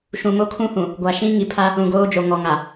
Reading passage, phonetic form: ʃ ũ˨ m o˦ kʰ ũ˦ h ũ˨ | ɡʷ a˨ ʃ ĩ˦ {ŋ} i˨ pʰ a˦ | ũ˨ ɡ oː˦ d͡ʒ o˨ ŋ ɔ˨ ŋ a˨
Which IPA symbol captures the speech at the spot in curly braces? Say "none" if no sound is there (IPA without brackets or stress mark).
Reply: ŋ